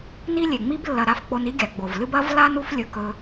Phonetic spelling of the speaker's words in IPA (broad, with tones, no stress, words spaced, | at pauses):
ni˥lʲe˩ŋ͡mi˥b lːɐ˧ɾa˧f k͡po˧ni˥ɡʲa˩ ɡ͡bo˩vlɨ˥b ɐ˥vla˥n u˥flʲɵ˧kɵ˧